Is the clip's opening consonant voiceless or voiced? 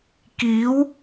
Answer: voiceless